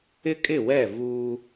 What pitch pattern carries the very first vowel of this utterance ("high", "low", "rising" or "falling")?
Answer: high